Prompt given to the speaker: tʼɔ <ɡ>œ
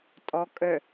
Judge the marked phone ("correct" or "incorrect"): incorrect